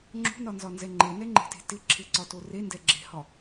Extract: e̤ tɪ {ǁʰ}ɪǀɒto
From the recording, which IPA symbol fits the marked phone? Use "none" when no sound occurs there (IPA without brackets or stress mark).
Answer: ǁʰ